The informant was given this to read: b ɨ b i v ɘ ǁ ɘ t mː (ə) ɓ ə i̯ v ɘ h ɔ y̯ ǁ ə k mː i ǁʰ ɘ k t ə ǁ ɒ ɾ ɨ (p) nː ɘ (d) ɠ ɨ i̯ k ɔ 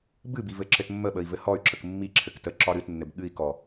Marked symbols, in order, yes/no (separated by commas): yes, no, no